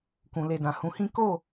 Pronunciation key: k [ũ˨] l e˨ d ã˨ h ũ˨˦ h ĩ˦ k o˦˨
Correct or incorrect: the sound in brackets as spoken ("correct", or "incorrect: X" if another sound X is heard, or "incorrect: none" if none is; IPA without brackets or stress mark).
correct